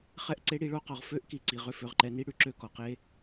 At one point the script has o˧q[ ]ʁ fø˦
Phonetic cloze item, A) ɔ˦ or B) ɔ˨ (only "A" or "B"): B